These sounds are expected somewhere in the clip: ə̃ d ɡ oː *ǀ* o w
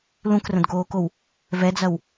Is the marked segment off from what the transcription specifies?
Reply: yes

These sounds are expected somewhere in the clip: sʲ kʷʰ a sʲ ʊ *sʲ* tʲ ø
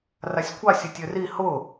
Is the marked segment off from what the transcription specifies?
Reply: yes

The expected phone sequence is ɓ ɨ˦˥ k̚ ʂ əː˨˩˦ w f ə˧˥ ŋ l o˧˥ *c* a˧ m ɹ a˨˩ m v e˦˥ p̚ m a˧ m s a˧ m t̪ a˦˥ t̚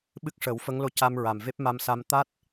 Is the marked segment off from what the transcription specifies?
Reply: no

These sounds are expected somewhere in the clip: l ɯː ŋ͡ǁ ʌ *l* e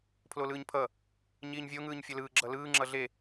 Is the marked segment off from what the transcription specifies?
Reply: yes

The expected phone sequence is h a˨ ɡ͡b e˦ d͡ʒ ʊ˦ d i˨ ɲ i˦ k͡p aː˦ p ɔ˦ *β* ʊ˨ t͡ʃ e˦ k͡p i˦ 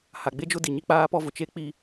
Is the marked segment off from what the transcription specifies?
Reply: yes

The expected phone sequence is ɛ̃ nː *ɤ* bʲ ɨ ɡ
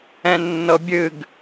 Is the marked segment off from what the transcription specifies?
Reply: no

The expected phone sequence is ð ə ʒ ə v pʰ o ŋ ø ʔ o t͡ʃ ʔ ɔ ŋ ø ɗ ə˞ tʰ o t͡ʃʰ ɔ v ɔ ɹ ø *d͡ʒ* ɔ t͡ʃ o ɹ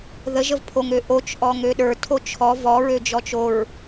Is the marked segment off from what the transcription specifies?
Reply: no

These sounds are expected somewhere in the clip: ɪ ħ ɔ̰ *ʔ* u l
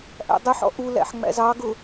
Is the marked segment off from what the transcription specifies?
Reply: no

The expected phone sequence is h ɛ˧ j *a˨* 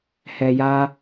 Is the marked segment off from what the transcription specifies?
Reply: yes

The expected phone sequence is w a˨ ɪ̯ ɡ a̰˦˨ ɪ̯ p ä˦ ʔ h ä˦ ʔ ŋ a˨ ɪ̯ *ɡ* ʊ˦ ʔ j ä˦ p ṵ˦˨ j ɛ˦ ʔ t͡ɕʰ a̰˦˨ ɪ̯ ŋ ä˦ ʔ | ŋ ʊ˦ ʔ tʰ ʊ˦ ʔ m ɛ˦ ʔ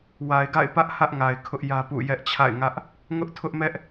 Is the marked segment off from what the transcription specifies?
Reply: yes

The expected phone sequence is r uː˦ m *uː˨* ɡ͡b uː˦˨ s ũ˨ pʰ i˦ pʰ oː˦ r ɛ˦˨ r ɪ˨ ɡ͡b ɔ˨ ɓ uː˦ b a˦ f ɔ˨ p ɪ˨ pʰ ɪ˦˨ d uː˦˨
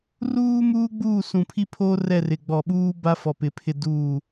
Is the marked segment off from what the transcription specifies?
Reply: yes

